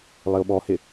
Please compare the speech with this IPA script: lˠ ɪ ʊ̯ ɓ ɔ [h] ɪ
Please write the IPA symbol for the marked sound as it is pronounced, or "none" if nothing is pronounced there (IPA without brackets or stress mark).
h